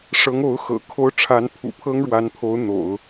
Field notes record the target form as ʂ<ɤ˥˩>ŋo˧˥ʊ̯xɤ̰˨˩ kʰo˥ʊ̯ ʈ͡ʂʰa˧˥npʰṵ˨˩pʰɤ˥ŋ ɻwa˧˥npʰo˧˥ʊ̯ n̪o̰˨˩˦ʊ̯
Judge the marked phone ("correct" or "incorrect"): incorrect